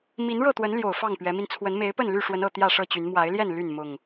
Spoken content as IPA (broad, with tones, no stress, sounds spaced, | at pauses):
m i˨˦ n ɻ ɤ˥˨ t̪ w ə˨˦ n l j o˨˩ ʊ̯ f ɑ˥˨ ŋ p ɥ ɛ˨˦ m i˧ n t͡sʰ w ə˨˦ n m e˨˦ ɪ̯ p ə˥˨ n l y˥˨ ʂ w ə˨˦ n ɤ˨˩ t̪ j ä˥˨ ʂ ɤ˥˨ t͡ɕ y˨˦ n m w a˨˦ ɪ̯ l j ɛ˥˨ n l y˥˨ n m ʊ˨˩ ŋ